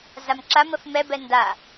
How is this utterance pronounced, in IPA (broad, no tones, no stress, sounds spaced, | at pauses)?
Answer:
z a m ǁ a m ə f m ɛ b ɛ n d a